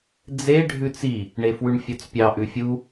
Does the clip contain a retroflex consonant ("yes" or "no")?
yes